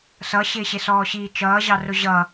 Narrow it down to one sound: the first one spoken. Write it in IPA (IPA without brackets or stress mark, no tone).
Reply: s